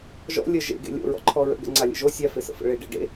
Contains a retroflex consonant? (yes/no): yes